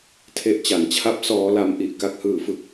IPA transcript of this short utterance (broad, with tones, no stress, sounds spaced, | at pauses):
tʰ e˦˥ ʔ t͡ɕ a˨˩ n t͡ɕʰ a˥˩ p̚ s ɔː˧ l a˧ m ʔ i˨˩ ʔ k a˨˩ k̚ h ɯː˨˩ f ɯ˨˩ k̚